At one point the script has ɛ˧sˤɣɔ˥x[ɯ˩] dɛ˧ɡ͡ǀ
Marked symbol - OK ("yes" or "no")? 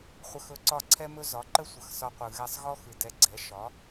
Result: yes